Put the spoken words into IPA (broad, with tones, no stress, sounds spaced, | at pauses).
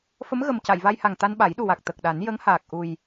f ə˧˥ m ɣ ə˨˩ m c a˨˩˨ j v a˧ j h a˨˩ ŋ t̪ a˧ n ɓ a˨˩˦ j ɗ u˨˩ w a˨˩ k̚ t̪ ə˨˩ k̚ ɗ a˨˩˦ n j ə˧˥ ŋ h aː˨˩ k̚ ʔ u˨˩ j